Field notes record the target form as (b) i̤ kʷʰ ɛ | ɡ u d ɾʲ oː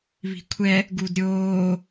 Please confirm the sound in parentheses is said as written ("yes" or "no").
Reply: no